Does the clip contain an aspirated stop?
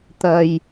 no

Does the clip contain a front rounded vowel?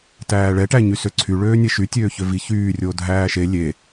yes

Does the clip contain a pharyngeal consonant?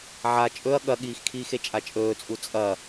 yes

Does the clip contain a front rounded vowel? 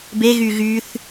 yes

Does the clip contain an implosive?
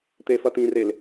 no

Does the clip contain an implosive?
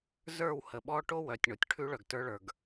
yes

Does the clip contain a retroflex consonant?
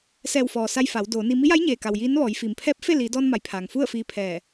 no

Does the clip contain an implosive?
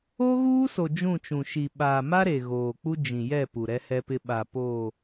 yes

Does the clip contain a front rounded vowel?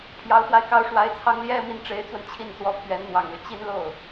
yes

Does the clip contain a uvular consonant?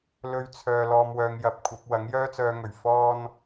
no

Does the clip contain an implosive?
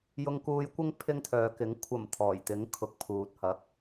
no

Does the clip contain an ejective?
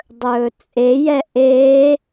yes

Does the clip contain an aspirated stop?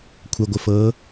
yes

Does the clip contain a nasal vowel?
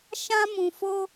yes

